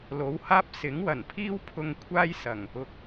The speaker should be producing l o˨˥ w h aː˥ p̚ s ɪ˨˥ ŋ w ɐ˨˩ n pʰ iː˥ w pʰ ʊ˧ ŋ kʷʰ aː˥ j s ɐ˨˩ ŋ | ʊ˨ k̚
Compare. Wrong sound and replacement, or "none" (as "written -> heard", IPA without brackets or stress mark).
none